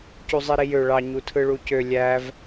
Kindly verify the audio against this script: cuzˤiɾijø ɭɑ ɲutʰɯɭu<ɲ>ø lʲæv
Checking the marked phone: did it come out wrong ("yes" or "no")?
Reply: yes